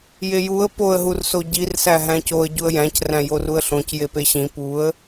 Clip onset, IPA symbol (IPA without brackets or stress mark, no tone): j